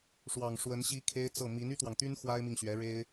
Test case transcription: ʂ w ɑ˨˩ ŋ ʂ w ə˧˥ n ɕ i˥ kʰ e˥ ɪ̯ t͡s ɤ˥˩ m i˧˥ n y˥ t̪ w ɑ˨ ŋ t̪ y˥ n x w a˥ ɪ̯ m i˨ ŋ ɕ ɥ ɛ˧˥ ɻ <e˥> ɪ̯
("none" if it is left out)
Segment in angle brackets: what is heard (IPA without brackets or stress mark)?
e˥